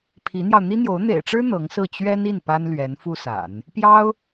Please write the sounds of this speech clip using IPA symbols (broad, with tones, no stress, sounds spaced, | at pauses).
pʰ i˧˥ n̪ j ɑ˧ ʊ̯ n̪ i˥ n̪ j o˧˥ ʊ̯ n̪ ḛ˨˩ ɪ̯ ʈ͡ʂ ɻ̩˥ n̪ ɤ˧˥ ŋ s ɹ̩˥˩ t͡ɕ ɥ ɛ˥ n i˥˩ n p a˥ n l ɥ ɛ˧˥ n f u˥ s a̰˨˩˦ n | p j ɑ˥ ʊ̯